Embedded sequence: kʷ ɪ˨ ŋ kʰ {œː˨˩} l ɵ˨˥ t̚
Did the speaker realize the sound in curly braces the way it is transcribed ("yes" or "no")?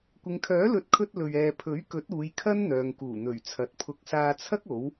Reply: no